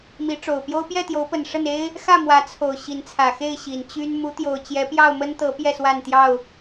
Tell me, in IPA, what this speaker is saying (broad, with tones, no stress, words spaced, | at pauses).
mi˨˦ʈ͡ʂo˨˩ʊ̯pjo˦ʊ̯ pjɛ˥˨t̪jo˨˦ʊ̯pə˨˩n ʂə˥˨ne˦ɪ̯ | xä˥˨mwä˨˦ t͡sʰo˨˩ʊ̯ ɕi˨˦nt͡sʰä˨˩xe˥˨ɪ̯ ɕi˨˩nt͡ɕy˦n mu˨˦t̪jo˨˩ʊ̯ t͡ɕjɛ˨˦pjɑ˥˨ʊ̯mə˦nt̪ɤ˨˦ pjɛ˥˨swa˥˨nt̪jɑ˥˨ʊ̯